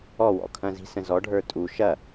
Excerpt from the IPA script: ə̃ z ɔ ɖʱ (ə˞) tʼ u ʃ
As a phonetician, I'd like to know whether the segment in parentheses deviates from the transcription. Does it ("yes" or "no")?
no